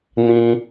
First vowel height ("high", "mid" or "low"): high